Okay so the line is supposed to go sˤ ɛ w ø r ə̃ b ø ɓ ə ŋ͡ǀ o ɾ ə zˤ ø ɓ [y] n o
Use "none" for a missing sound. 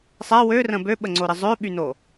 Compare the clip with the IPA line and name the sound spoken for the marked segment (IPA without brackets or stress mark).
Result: y